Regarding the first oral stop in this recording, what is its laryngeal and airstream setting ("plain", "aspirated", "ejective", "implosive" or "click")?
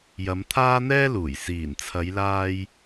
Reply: aspirated